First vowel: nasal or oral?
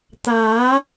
oral